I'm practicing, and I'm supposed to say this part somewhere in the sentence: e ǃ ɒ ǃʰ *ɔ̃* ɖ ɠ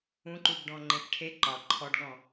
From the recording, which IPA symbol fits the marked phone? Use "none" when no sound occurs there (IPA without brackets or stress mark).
ɔ